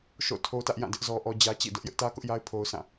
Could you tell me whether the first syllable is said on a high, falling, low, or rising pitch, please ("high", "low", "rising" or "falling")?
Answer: falling